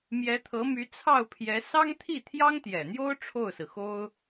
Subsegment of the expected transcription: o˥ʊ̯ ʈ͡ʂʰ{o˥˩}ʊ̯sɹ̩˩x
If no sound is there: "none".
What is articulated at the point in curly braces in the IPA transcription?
o˥˩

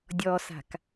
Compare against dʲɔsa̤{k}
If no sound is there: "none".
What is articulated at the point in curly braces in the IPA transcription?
k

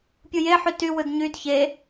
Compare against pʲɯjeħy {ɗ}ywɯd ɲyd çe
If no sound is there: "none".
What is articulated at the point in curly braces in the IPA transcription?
t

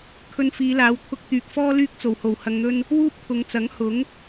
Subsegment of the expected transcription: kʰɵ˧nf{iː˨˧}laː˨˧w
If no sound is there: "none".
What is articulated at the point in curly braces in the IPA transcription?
iː˨˧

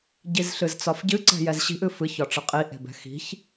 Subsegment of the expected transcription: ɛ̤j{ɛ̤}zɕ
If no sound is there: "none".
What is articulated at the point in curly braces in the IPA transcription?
ɛ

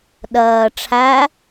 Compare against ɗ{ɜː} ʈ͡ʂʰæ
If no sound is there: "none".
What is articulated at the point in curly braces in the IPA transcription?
ɜː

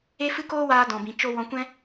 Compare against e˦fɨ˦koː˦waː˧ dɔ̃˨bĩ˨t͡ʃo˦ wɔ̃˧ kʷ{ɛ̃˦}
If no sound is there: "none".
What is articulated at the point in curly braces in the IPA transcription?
ɛ̃˦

